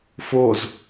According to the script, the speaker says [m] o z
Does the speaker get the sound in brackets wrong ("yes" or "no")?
yes